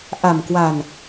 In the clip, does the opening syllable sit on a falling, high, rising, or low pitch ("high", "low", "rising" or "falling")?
low